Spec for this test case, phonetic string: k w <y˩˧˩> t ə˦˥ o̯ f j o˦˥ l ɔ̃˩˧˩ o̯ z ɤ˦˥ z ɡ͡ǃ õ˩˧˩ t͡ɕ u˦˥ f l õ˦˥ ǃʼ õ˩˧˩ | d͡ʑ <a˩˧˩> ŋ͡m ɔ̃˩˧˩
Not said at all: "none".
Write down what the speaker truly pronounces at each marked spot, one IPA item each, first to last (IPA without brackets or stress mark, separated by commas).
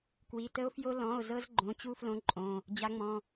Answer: i˩˧˩, a˨˦